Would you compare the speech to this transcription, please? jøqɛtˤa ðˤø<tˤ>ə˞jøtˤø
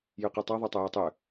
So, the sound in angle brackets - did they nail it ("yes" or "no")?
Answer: yes